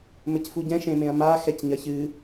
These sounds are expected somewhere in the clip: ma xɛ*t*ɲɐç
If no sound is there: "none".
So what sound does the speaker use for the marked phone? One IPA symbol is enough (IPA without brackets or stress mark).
c